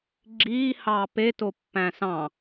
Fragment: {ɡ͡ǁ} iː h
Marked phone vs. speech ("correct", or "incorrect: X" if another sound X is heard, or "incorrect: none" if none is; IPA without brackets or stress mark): correct